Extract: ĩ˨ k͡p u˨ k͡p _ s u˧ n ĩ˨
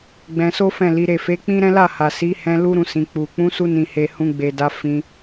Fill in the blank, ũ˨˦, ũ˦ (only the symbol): ũ˨˦